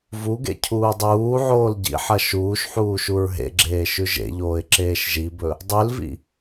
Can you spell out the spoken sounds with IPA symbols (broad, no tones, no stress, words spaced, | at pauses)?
vuɡḛ cʰuːdˤuːʕoːl ɟḭħɐ ʃuːʃħuː ʃuɹɦḛɡ͡ǁeː ʃʉʒḛʎoːɪ̯ ǁeːʃʒibɵ | dˤʉlvḭ